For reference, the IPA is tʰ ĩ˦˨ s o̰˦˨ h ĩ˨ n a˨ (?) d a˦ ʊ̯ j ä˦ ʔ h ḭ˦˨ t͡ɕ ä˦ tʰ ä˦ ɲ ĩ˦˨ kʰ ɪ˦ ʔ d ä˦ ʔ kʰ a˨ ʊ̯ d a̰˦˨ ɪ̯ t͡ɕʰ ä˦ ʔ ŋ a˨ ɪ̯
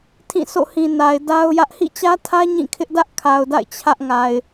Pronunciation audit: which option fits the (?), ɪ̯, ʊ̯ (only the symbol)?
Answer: ɪ̯